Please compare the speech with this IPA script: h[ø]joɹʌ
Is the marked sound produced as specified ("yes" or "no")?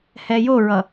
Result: no